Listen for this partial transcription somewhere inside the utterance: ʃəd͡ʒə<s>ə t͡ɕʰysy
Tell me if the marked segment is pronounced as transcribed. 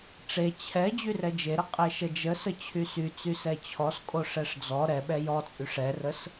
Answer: yes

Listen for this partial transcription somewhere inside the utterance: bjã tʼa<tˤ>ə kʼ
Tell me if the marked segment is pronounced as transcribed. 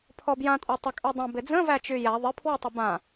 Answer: yes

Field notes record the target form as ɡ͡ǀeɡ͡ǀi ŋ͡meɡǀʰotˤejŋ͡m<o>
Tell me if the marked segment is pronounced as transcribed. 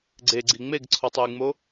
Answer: yes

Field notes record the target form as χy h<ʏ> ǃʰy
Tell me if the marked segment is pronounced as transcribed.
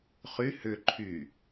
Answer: yes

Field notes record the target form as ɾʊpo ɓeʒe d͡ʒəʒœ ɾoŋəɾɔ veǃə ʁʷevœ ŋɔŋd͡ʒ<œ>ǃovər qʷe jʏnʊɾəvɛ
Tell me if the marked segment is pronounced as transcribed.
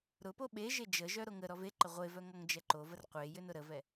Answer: no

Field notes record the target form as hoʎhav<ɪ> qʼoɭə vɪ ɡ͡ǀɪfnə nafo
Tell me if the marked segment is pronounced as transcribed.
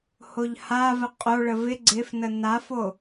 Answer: no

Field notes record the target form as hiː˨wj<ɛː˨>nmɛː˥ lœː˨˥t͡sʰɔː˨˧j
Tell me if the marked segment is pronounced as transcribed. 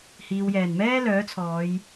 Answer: no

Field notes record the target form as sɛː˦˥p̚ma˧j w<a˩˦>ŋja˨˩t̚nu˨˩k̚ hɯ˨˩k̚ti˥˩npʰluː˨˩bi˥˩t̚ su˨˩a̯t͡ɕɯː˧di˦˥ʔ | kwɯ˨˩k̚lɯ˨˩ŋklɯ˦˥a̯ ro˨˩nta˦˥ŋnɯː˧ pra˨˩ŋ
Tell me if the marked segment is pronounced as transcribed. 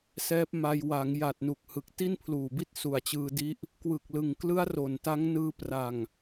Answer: yes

